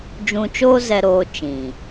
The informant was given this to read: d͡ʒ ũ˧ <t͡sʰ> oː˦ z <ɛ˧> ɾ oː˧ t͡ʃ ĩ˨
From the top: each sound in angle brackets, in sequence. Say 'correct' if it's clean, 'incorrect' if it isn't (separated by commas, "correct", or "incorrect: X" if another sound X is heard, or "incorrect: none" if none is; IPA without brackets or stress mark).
incorrect: t͡ʃ, correct